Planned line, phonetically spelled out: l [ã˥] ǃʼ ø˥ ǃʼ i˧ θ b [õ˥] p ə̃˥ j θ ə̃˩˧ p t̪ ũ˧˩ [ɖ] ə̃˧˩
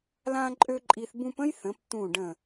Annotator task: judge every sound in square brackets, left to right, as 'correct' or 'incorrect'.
correct, incorrect: ũ˥, correct

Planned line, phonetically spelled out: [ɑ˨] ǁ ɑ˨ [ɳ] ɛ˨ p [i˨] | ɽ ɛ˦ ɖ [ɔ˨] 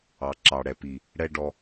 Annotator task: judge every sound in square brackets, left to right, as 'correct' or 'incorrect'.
correct, incorrect: ɽ, correct, incorrect: ɔ˧

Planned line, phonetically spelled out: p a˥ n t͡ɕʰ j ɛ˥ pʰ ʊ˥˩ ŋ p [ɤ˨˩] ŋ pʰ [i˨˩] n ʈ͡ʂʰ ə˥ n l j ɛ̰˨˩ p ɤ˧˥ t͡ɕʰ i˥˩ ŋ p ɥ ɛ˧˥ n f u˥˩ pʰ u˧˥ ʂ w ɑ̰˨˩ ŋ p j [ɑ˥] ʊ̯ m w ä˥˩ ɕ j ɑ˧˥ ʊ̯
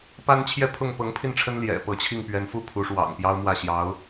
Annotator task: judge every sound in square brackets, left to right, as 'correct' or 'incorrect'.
incorrect: ɤ˧˥, incorrect: i˥˩, correct

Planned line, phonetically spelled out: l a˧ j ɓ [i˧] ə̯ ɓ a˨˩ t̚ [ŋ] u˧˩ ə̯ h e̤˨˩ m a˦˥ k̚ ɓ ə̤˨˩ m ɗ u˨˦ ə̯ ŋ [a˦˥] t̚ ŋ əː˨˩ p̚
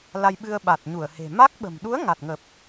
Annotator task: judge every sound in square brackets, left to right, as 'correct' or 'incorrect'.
incorrect: ɨ˧, incorrect: ɲ, incorrect: a˨˩

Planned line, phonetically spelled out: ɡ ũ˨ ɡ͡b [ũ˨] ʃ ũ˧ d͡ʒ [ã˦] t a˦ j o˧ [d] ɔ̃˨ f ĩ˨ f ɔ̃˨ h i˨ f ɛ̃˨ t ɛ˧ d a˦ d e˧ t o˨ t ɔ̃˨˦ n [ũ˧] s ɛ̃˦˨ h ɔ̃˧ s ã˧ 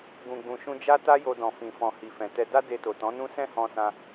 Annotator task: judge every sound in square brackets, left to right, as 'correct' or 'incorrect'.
correct, incorrect: a˦, correct, incorrect: ũ˦

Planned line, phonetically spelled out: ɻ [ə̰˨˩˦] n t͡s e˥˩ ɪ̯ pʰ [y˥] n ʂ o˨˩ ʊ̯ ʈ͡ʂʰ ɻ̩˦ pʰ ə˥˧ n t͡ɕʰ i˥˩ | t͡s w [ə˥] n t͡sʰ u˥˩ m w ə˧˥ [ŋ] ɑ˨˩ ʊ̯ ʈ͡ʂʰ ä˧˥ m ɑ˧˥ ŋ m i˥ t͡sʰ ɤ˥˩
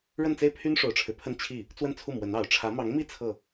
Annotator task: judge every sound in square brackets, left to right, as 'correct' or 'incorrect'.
incorrect: ə˥˧, correct, incorrect: ə˥˧, incorrect: n

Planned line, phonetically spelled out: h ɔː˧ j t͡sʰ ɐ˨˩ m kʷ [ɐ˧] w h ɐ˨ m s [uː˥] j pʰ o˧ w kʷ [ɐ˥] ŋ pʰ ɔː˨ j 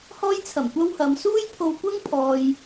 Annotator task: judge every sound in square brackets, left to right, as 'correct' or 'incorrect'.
correct, correct, correct

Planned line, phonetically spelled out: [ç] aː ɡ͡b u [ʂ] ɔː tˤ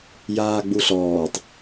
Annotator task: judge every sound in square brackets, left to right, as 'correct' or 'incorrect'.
incorrect: j, incorrect: ɬ

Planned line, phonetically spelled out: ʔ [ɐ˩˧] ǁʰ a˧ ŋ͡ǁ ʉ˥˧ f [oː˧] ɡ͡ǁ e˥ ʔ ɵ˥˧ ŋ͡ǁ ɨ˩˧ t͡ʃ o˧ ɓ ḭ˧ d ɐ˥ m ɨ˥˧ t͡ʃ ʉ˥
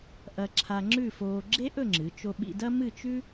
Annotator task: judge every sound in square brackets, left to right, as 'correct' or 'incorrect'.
incorrect: ɐ˧, correct

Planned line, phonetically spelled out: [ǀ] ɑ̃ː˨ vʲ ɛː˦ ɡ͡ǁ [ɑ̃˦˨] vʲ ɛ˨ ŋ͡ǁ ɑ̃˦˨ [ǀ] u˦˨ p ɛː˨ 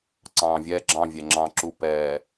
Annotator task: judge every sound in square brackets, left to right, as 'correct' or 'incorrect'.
correct, correct, incorrect: ǁ

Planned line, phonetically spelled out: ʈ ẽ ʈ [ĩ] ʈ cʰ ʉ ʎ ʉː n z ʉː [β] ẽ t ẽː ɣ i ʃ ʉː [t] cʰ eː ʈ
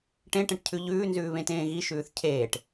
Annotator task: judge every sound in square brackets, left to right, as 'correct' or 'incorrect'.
incorrect: ẽ, correct, incorrect: θ

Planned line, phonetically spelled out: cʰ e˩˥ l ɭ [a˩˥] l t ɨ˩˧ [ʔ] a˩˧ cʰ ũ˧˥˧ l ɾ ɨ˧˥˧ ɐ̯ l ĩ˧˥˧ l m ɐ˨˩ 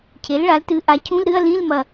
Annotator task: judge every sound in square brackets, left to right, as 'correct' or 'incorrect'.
correct, correct

